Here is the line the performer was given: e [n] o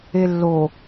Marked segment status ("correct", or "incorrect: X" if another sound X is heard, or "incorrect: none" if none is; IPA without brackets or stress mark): incorrect: lː